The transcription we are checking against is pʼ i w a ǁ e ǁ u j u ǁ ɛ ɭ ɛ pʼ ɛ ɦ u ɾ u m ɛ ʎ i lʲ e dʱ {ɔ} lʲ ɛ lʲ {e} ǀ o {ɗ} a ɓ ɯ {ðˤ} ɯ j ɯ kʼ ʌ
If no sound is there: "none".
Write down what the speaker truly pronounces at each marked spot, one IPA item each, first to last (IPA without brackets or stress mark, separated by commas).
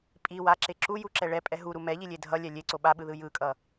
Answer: ʌ, e, ɓ, ð